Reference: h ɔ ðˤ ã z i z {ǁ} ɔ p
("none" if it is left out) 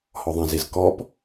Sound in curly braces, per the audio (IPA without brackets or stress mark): k